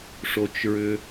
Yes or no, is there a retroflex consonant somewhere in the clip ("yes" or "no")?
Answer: yes